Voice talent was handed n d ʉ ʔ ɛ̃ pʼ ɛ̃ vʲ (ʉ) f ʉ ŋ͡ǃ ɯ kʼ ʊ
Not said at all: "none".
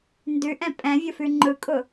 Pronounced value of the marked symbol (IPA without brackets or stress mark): ʊ